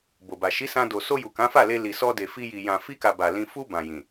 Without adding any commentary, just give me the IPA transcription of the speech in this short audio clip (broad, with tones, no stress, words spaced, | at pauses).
bo˨ba˨ ʃi˨˦sã˧ do˨so˧ju˨ kã˨˦fa˦˨le˧ li˨sɔ˧de˨ fi˧ji˨ jã˨fi˧ka˨ ba˨lĩ˧ fu˧ bã˨jĩ˨